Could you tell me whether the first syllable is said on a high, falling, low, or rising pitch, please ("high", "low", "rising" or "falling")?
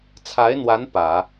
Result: rising